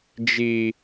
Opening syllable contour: low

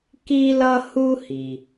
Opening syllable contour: high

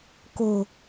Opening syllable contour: low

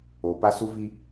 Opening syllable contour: low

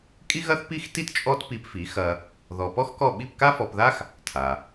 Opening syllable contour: high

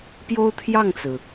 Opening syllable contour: high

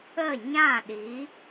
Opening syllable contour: falling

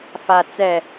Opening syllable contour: low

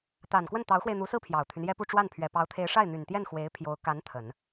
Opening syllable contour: low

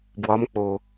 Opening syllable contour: rising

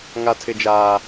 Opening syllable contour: high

